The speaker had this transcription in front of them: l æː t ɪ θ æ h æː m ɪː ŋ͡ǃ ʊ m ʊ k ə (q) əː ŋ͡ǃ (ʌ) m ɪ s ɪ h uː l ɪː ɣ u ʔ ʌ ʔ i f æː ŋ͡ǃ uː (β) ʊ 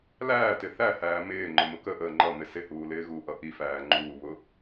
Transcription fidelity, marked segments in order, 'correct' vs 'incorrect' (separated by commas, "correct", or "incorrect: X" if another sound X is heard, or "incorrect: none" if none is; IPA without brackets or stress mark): incorrect: ʔ, correct, correct